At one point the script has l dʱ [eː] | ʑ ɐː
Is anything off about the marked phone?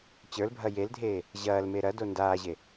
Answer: no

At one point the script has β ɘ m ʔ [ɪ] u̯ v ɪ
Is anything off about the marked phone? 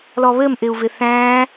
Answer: no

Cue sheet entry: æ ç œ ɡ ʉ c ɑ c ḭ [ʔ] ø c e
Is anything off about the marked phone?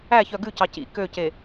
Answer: yes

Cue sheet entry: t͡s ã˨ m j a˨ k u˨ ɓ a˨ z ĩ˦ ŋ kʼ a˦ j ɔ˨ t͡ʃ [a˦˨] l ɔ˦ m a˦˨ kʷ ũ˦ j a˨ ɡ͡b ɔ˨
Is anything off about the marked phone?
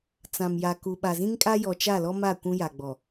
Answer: no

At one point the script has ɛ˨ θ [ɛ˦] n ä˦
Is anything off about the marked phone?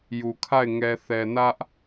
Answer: yes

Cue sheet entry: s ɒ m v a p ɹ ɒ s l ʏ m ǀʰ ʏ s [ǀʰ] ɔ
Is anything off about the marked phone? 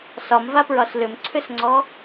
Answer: yes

